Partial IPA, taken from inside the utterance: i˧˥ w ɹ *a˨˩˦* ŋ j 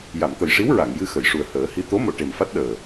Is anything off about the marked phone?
yes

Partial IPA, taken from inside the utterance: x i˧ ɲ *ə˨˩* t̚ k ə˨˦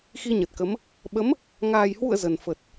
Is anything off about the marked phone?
no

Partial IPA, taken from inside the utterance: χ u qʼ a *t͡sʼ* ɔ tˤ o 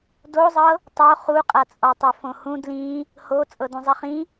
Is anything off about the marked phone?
no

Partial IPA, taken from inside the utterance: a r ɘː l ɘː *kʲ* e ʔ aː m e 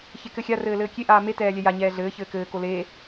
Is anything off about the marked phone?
no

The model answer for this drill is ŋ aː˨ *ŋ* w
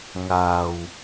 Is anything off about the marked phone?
yes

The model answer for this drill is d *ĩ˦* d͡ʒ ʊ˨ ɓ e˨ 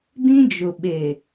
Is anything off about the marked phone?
no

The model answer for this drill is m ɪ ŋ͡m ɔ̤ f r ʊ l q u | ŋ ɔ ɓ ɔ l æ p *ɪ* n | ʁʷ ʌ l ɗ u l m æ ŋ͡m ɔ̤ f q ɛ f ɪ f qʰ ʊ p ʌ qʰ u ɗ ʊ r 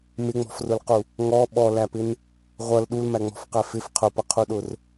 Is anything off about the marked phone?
no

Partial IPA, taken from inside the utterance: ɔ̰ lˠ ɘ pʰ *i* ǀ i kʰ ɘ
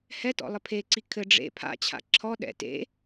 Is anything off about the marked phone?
yes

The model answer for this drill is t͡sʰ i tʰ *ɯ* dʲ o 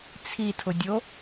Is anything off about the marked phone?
yes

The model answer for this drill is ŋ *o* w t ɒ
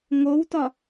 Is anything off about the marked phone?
no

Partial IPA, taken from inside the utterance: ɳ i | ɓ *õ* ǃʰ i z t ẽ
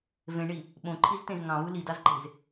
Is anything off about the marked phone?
no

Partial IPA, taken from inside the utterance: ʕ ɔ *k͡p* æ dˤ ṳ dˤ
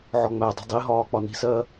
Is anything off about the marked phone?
yes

